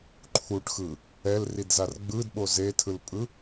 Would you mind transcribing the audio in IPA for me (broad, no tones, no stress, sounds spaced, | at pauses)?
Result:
ǃʰ u ʈ x ɯ | ɛ l r i d z a r ɡ͡b ɯ d ɓ o z e tʰ ɯ l pʼ ɯ